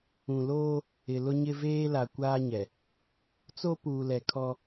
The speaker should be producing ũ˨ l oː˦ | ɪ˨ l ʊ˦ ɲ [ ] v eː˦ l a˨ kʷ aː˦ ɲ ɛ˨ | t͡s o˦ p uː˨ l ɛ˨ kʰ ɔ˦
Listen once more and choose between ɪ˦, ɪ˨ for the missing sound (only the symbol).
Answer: ɪ˦